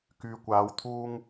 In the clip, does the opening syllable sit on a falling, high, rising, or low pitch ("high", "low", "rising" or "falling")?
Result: low